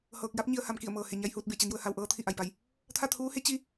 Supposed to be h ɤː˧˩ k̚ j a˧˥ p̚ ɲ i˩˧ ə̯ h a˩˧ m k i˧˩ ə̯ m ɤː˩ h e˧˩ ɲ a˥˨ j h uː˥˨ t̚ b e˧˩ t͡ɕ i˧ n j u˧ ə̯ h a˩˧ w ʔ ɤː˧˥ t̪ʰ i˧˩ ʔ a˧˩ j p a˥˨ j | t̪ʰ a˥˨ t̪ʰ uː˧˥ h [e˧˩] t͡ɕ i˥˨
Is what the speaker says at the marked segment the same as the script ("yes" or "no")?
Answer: no